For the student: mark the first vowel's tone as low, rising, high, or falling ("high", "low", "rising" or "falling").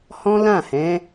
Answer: high